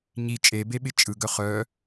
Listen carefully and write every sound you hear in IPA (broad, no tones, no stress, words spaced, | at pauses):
ɲi t͡ʃʼebeɓɪ t͡ʃʼɯɡœ χœ